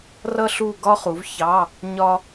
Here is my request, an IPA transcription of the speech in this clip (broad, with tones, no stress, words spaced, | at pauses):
rʌ˥ɬu˥˨ɡɒ˥χu˩˥v çɑ˧˥˧ | ɲɒ˥